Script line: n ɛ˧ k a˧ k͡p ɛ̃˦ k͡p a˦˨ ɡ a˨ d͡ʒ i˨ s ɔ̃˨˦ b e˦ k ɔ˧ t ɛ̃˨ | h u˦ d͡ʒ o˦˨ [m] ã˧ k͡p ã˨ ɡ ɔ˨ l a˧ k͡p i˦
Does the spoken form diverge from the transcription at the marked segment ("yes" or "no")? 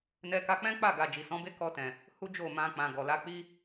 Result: no